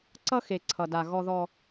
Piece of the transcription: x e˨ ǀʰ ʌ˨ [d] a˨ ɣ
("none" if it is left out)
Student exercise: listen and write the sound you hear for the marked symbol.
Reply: d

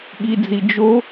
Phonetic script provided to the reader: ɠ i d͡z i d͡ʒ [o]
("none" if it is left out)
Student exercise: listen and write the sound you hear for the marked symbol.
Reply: o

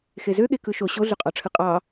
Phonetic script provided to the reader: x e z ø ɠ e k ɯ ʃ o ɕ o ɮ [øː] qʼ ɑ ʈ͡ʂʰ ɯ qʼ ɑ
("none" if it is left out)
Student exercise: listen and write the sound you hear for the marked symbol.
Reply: ø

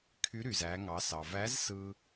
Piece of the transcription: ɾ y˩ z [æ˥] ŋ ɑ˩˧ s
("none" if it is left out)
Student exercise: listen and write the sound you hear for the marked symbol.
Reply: æ˩˧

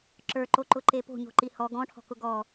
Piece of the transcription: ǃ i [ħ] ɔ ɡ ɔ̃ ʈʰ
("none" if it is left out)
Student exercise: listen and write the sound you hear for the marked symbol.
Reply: h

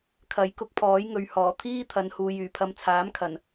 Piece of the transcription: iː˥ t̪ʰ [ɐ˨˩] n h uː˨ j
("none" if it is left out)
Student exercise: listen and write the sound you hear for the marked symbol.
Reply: ɐ˨˧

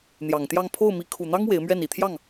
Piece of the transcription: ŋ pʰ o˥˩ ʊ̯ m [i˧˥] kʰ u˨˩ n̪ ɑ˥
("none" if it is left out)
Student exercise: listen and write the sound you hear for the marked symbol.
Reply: i˧˥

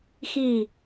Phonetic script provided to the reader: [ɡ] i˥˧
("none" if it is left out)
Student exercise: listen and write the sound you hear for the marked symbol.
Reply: x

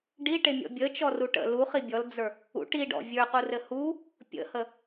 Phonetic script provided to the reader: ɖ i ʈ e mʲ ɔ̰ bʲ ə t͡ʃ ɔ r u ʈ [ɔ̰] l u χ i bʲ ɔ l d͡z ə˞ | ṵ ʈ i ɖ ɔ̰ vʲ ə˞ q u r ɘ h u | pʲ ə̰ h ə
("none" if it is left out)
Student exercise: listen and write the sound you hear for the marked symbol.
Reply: ə̰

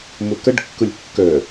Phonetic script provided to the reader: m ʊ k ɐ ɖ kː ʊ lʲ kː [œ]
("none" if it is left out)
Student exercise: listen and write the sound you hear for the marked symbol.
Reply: œ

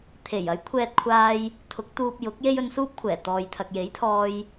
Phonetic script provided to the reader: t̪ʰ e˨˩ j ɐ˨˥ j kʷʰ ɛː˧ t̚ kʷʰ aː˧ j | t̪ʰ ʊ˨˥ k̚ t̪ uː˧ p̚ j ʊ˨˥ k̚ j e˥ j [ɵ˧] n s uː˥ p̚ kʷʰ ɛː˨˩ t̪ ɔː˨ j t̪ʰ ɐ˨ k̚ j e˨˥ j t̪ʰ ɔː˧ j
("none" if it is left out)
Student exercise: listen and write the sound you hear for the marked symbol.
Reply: ɵ˧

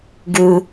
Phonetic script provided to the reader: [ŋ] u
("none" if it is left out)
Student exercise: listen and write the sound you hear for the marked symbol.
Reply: ɡ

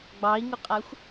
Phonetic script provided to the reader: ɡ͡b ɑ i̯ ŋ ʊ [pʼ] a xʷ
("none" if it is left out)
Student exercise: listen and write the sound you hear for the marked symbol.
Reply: qʼ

